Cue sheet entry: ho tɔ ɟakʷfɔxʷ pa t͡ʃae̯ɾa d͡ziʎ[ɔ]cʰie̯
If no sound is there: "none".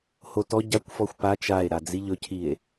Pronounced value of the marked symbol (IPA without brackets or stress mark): ɵ